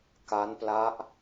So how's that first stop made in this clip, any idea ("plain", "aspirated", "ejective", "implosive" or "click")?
plain